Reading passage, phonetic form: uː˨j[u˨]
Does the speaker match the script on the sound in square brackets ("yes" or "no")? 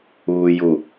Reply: yes